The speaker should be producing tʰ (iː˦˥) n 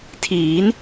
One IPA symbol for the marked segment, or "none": iː˩˦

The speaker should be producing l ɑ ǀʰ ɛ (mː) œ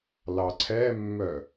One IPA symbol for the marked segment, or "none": mː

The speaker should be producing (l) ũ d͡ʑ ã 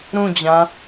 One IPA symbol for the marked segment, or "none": ɾ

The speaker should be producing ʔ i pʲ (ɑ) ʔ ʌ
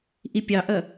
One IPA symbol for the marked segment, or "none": ɑ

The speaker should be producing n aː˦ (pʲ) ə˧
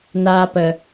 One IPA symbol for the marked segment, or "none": p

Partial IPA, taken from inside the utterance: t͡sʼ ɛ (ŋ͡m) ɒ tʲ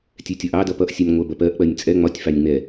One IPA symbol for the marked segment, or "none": ŋ͡m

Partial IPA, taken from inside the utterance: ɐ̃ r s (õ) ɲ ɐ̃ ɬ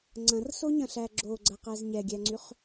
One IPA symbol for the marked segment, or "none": o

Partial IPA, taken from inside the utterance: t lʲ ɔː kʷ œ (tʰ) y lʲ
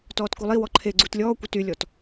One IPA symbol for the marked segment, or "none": t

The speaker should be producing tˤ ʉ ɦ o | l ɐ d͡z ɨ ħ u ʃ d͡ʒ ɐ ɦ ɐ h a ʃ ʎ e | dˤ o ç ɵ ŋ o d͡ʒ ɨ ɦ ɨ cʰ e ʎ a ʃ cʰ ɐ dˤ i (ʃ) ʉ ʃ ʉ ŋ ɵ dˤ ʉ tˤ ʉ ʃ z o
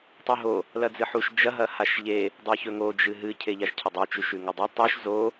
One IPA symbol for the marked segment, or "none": t͡ʃ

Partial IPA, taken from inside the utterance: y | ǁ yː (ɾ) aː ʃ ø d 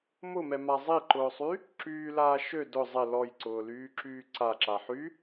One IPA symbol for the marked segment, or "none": l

